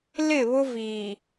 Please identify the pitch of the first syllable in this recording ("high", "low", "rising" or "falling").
falling